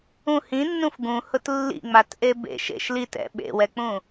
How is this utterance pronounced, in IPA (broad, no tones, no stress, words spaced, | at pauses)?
ũ hĩnːũf ɡũhʊt lːḭŋ͡matʔe bḛʃ ḛʃ lit ɛ̰ ɓḛwɛk͡pũ